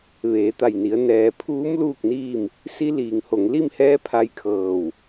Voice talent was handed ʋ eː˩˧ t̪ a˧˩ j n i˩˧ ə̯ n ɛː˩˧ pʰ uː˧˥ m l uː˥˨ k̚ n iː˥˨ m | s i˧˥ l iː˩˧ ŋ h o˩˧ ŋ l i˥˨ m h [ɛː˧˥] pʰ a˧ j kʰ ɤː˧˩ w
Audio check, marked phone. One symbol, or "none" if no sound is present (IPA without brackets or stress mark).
ɛː˧˥